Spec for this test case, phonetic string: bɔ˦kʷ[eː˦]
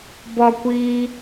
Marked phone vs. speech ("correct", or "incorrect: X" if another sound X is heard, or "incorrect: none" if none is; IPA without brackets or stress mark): incorrect: iː˦